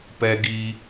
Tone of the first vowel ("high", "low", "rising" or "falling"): high